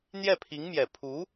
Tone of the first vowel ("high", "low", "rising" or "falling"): falling